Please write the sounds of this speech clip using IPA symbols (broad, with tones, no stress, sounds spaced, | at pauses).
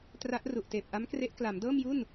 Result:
t r a˦˥ ʔ r u˨˩ ʔ t eː˨˩ p̚ ʔ a˦˥ m k r e˦˥ ʔ k l a˩˦ m d ɤː˥˩ m j u˥˩ n